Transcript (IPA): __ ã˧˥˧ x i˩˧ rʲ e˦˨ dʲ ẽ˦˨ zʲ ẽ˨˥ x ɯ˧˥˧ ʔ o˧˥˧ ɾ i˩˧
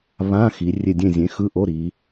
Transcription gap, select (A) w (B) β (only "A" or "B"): B